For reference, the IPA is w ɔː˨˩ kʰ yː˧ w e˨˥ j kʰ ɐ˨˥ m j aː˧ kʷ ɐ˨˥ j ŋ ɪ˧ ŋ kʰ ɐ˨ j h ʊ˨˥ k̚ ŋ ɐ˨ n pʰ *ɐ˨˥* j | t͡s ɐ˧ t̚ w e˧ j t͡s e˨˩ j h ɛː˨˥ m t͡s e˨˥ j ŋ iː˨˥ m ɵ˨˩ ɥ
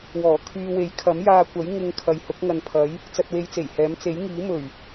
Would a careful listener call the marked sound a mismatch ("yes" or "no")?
no